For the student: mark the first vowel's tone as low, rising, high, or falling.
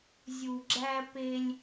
low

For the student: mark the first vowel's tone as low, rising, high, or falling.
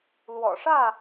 low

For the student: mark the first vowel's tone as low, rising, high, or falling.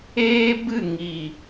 high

